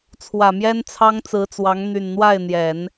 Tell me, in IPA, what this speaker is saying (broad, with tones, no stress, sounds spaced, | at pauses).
t͡sʰ w ä˨˩ m j ɛ˥ n t͡sʰ ɑ˥ ŋ t͡s ɹ̩˧˥ t͡s w ɑ˧˥ ŋ n̪ y˨˩ n n̪ w a˥˩ ɪ̯ n̪ j ɛ˨˩˦ n